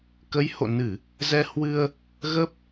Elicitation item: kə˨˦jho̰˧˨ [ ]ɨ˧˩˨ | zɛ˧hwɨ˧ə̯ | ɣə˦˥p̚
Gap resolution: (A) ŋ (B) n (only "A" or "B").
B